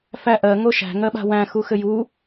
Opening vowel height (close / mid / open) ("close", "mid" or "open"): open